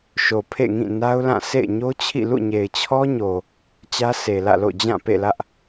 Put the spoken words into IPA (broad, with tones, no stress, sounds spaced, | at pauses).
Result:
ʃ o˨ pʰ ḛ˦˨ ŋ ĩ˦˨ n a˦ ʊ̯ l ã˦˨ sʰ ḛ˦˨ ɪ̯ ɲ o˦ t͡ɕʰ ḭ˦˨ l ṵ˦˨ ɲ e˨ ɪ̯ t͡ɕʰ ɔ˦ ɲ o˨ | t͡ɕ ä˦ sʰ e˨ l ä̰˦˨ l o̰˦˨ d͡ʑ ã˦˨ p ḛ˦˨ l ä˦ ʔ